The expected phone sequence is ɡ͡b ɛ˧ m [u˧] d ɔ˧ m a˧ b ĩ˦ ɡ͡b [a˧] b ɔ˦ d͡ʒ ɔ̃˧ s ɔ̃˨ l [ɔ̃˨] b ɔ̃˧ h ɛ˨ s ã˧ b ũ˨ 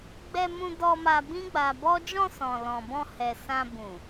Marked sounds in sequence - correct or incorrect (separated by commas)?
incorrect, correct, correct